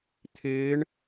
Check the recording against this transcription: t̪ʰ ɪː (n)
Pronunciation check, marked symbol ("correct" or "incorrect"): incorrect